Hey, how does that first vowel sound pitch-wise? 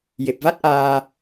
low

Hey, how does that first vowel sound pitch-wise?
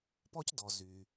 high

